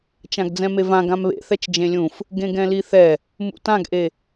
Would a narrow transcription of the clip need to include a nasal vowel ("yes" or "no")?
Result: yes